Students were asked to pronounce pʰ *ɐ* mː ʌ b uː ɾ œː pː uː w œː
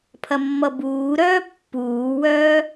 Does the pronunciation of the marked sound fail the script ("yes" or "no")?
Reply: no